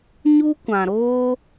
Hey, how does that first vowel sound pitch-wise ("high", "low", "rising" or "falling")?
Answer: high